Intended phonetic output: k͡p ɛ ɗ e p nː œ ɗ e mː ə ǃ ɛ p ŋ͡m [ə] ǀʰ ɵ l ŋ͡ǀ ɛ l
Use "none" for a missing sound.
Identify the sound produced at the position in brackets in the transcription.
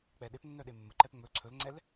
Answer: ɵ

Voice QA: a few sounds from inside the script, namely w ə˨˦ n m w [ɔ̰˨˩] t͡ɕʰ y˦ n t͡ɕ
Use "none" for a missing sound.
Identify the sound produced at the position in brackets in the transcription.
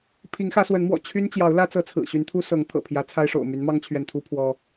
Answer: ɔ̰˨˩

